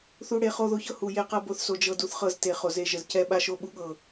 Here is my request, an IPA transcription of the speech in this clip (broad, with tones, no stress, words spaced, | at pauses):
θu˨ ɽe˨ χo˦˨ðo˦çɤ˦ hu˨ je˦qɤ˦ bo˨θso˨ d͡ʒɤ˦du˦θχɤ˦z te˨χo˨ze˦˨ʒə˨z cɛ˦ɓa˦ʃo˦ ɓu˦ɠɤ˨